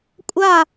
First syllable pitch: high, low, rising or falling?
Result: falling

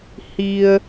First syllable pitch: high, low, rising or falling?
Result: low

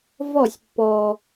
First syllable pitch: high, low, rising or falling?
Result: falling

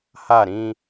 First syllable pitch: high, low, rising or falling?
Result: falling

